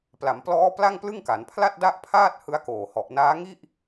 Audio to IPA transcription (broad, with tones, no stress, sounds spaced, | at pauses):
p l a˩˦ m p l ɔː˦˥ p l a˥˩ ŋ p l ɯ˥˩ ŋ k a˩˦ n pʰ l a˥˩ t̚ d a˥˩ ʔ pʰ aː˥˩ t̚ h ɯ˦˥ a̯ k oː˨˩ h ɔ˨˩ ʔ n aː˦˥ ŋ i˥˩ ʔ